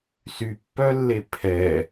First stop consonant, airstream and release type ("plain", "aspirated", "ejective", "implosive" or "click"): plain